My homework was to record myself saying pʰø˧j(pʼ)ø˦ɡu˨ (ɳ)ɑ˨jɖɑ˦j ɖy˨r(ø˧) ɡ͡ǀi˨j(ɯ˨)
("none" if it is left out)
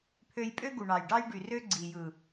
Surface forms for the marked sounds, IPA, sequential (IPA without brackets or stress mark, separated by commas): pʼ, ɳ, ø˦, ɯ˨